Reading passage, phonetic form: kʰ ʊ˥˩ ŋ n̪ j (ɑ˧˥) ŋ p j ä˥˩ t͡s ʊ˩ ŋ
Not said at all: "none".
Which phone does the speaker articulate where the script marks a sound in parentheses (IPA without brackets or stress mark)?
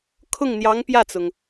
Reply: ɑ˧˥